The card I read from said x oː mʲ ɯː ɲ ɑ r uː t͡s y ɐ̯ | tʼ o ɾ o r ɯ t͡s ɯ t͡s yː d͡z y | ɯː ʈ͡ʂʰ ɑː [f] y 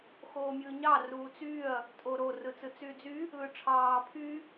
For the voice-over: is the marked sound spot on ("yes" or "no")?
no